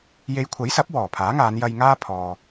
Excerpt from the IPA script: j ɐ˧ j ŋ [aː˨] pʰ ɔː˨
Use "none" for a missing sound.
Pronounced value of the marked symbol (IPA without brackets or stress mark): aː˥